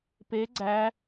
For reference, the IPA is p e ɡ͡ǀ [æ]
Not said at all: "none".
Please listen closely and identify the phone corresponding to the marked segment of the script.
æ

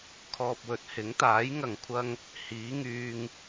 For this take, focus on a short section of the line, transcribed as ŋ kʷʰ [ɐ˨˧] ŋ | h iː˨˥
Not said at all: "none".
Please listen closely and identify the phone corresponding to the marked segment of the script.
ɐ˧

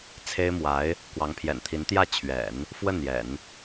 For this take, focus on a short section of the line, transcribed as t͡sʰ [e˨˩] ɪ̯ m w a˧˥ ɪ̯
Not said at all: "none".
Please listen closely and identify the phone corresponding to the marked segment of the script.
e˥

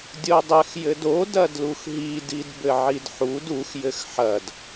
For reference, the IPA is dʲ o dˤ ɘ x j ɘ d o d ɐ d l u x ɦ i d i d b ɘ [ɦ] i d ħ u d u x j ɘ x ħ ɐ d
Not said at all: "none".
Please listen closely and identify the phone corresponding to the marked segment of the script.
ʕ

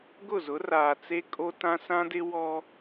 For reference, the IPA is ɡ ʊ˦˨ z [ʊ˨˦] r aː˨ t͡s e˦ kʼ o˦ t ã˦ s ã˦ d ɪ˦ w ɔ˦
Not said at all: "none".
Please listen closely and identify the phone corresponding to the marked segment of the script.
ʊ˨˦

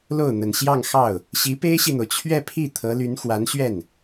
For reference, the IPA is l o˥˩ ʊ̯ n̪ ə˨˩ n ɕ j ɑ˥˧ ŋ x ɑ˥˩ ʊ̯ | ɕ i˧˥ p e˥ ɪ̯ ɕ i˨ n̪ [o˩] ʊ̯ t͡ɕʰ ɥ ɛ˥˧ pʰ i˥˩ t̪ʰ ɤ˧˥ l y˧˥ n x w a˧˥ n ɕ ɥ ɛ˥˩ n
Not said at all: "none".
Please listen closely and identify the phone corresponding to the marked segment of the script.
o˩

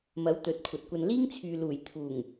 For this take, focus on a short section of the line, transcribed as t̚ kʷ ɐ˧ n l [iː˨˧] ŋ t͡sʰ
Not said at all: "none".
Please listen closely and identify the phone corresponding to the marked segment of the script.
iː˥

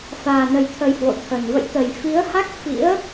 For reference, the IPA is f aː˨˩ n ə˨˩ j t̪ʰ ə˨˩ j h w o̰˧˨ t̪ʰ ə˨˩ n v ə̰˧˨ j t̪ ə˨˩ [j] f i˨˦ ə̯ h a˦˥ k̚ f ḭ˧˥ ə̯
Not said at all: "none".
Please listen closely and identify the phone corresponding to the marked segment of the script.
j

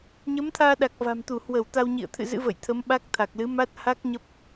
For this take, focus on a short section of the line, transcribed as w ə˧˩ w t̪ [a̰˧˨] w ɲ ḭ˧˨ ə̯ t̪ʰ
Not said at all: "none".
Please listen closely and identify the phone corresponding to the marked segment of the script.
a˧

